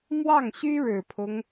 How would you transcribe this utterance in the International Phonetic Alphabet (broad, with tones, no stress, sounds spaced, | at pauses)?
m w ɑ˥˩ ŋ ɕ y˥ ɻ ɻ̩˨˩ pʰ ʊ˦ ŋ